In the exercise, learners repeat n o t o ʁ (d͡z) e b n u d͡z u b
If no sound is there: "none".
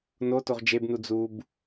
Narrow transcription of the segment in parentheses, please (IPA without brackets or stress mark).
d͡ʒ